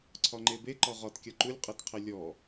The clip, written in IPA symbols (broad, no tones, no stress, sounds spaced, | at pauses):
ǀʰ ɒ ŋ͡ǃ e b e ǃ ɒ ʁ ɒ t kʲ ɒ ǃ u lʲ qʼ e t qʰ e lʲ ɔ